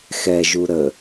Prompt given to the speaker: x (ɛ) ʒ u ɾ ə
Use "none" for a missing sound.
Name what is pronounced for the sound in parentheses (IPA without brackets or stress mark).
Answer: ɛ